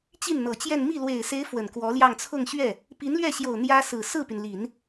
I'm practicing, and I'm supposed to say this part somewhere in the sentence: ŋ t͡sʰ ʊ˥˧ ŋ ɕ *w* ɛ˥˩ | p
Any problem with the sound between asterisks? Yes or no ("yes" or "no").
yes